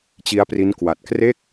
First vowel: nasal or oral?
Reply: oral